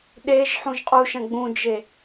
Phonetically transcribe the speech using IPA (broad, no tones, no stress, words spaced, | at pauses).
ɗeʒ ħũʒqʼuʃɐ̃ ɡ͡bũd͡ʒe